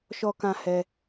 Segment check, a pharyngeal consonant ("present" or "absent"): absent